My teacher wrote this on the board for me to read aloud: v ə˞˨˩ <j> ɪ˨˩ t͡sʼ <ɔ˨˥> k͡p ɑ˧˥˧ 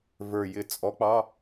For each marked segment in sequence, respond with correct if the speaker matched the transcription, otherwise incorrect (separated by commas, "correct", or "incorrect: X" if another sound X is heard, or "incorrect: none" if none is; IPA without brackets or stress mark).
correct, correct